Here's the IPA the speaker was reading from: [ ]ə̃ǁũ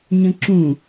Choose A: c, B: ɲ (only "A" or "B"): B